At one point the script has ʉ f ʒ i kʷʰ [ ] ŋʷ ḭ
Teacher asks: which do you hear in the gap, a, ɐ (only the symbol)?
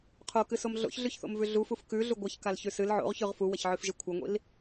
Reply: ɐ